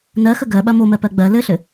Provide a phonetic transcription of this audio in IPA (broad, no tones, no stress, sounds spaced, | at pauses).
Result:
n ɜ x ə ɡ ɜ ɓ ɐ m o m ɜ p ɜ ɡ͡b ɜ l ɘ ɬ ɘ